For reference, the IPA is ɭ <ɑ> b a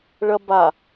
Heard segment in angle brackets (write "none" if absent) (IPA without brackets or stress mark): ɐ